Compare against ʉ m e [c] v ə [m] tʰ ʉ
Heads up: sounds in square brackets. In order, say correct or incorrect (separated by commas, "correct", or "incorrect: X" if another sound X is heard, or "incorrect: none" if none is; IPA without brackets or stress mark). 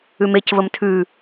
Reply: correct, correct